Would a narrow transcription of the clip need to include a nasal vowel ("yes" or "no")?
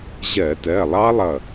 no